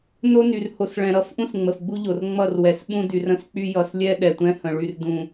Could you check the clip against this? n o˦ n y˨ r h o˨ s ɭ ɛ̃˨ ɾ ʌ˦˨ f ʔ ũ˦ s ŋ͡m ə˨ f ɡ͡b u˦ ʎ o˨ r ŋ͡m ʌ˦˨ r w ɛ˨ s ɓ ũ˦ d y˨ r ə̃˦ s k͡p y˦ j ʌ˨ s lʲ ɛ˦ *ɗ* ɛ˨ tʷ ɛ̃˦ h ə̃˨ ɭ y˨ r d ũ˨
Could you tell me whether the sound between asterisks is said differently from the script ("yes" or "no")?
no